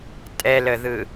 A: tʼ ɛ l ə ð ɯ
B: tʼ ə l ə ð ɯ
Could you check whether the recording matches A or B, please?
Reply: A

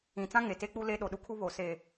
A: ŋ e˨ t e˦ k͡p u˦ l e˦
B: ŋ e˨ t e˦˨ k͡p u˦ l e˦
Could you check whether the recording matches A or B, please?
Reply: A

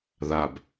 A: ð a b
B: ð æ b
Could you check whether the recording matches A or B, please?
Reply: A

